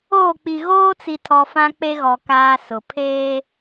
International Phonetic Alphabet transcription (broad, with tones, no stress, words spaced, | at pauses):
oː˦˨k͡pi˨ ɣoː˦t͡si˨tʰɔ˨ fã˦k͡pe˦ɣɔ˨ kaː˨ sʊ˨ pʰeː˦